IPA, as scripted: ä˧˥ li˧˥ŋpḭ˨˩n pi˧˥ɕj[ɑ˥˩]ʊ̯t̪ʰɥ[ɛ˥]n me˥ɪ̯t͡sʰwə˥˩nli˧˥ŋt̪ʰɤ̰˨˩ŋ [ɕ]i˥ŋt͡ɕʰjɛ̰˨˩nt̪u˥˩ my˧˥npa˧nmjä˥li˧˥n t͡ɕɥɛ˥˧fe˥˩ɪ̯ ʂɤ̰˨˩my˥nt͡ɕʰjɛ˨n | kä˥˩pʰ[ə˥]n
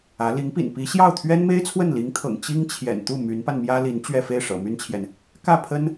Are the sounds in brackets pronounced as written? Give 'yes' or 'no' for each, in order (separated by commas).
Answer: yes, yes, no, yes